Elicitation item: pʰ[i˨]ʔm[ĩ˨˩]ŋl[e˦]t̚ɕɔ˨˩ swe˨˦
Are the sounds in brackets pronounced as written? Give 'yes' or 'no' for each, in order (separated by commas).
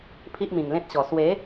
no, yes, no